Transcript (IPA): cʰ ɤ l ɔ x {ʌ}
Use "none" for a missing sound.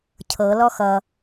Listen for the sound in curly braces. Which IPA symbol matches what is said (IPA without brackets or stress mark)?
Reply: ʌ